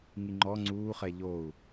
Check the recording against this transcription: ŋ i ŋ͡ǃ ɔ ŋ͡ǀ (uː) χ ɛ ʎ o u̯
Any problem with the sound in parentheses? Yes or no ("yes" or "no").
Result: no